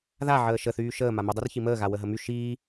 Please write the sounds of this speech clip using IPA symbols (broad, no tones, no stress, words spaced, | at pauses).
ðaʕəː ʃəθyː ʃəː mamydˤyr çiməːɣa wəɦəmy ʃiː